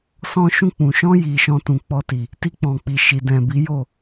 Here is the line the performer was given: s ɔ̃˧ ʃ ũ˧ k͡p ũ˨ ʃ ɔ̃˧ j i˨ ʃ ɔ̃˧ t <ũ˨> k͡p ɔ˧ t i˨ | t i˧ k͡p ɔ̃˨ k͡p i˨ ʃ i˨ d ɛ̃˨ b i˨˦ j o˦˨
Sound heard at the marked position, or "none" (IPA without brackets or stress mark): ũ˨